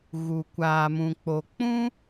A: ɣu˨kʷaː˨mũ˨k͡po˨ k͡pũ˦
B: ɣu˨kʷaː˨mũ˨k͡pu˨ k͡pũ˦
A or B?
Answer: A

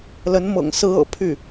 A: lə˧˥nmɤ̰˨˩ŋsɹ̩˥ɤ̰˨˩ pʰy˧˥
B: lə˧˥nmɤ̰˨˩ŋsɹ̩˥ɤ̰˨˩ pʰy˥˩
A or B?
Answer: B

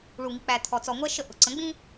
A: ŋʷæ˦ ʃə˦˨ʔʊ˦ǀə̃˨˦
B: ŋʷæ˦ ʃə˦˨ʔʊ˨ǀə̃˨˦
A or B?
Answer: B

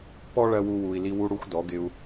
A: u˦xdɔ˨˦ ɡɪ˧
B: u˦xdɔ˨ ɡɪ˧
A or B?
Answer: A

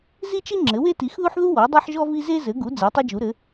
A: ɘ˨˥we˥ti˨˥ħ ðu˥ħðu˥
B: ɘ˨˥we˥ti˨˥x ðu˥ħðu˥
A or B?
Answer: B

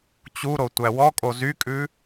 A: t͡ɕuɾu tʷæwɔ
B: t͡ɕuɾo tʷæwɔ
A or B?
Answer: B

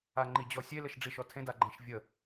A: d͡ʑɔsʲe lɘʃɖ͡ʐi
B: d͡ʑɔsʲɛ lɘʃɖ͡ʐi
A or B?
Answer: A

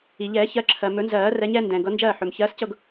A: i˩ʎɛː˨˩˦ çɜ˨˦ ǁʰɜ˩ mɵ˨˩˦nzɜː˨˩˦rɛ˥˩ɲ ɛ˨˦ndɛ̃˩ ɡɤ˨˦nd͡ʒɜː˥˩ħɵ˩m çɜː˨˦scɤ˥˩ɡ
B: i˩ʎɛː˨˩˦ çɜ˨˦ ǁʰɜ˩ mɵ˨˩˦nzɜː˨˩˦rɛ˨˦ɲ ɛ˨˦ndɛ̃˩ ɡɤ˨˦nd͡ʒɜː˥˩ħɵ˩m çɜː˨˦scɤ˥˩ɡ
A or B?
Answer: B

